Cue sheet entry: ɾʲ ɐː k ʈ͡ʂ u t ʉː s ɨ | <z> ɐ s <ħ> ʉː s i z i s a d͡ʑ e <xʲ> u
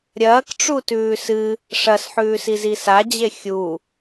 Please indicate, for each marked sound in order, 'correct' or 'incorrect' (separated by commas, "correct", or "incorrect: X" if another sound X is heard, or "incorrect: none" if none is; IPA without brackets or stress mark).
incorrect: ʂ, correct, correct